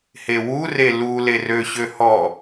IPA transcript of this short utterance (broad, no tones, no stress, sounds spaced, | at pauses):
h e w u r e l u l e r ø ɕ ø h ɔ